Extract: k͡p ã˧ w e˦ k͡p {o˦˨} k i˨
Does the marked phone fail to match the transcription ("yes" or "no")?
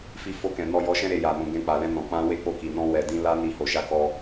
no